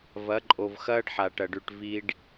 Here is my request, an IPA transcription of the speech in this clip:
v ɐ˨˦ ǃʼ o˨ v x ɐː˦ ɖ ħ a˨ ʈ ɐ˨ ɖ ʉ˨ ʈ v i˦ ɖ

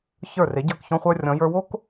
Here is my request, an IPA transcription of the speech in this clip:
ç ə˞˧˩ r e˩˧ ɟ ə˞˧˩ k ç ɔ̃˧ χʷ ə˞˧ rʲ ɔ̃˩˧ j ə˞˧ w o˥ k

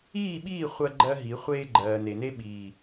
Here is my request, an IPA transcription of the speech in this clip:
iː˦˨ ɓ iː˦˨ χʷ ɜ˦ ɡ͡ǃ ɜ˦ ɦ i˨˦ χʷ eː˦ ɡ͡ǃ ɜː˨ n e˨ n e˦ ɓ iː˨

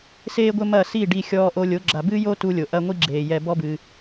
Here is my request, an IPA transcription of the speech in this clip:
s eː˦ ɡʷ ɘ˦ m ɐ˦˨ s i˦˨ ɖ i˧ xʲ ɔː˧ ʔ o˧ lʲ o˨˦ ɡ͡ǁ a˨ b ɨː˦ j o˦ t u˧ lʲ o˨ ʔ ɐ˦ ŋʷ i˦ ɡ͡ǁ eː˨ j ɛ˧ b ɔ˦ b ɨː˧

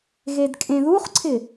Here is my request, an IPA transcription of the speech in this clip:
ɣ e d kʼ ẽ ð u χ ǀʰ ɪ

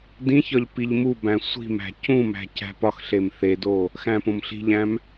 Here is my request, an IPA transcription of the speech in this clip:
d ĩ ç ɒ ʎ p i ʎ m u b æ̃ sʷ i̤ m æ̤ c ũ m æ̤ c æ̤ p ɒ x ɬ e m θ e d o | x æ̃ p õ m ɬ i̤ ʎ æ̃ m

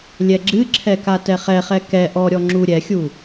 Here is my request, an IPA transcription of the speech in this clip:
lʲ ɛ ɡ͡ǁ ɨ ǁʰ ɛ k a t ɛ χ ɛ χ ɛ k ɛ ʔ ɔ ɾʲ ɔ ŋ͡ǁ u ɾʲ ɛ xʲ u

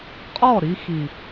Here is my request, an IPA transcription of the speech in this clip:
qʼ ɔ˦˨ ɾ i˧ x i˨

